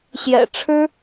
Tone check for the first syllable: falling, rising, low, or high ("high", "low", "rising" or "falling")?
low